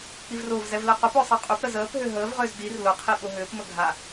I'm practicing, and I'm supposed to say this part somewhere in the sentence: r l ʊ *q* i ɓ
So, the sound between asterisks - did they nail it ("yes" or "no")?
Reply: no